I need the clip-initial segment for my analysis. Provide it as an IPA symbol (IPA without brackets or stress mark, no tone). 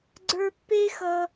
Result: ɡ͡ǀ